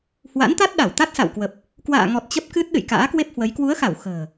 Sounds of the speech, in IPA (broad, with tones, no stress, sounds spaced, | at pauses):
h w a̰˧˥ n t̪ a˦˥ t̚ ɗ a˧˩ w t̪ a˦˥ t̚ s a̰˧˨ w k w ə˨˩ p̚ | k w a̰ː˧˨ ŋ ɔ˨˩ t̚ t͡ɕ ə˦˥ p̚ k ɨ˦˥ t̚ ɗ ɨ̰˧˨ j k a̰ː˧˥ k w e˦˥ p̚ h w ə˨˦ j k w u˨˦ ə̯ x a˧˩ w x ə̤ː˨˩